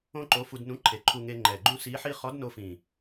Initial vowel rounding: rounded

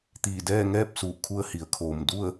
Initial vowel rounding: unrounded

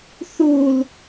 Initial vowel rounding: rounded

